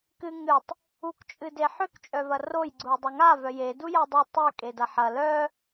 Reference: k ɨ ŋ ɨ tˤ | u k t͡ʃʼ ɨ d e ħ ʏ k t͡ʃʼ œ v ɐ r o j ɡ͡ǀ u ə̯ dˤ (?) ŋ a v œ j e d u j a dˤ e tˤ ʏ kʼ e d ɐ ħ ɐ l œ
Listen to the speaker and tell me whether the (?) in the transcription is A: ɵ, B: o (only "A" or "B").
B